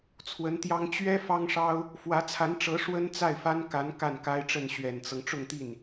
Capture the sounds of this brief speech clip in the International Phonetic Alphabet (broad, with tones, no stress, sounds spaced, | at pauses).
t͡sʰ w ə˧˥ n t̪ j ɑ˥ ŋ t͡ɕ ɥ ɛ˥ f ɑ˥ ŋ ʂ ɑ˥ ʊ̯ | f w ä˧˥ t͡sʰ a˧˥ n ʈ͡ʂ ɤ˧˥ ʂ w ə˥ n t͡s a˥˩ ɪ̯ f a˥ n k a˧˥ n k a˥˩ n k a˥ ɪ̯ ʈ͡ʂ ə˥˩ n ɕ ɥ ɛ˨˩ n t͡s ɤ˦ ŋ ʈ͡ʂ ʊ˥˧ ŋ t̪ i˥˩ n